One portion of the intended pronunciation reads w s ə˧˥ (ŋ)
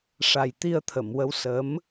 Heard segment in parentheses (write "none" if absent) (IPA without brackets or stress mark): m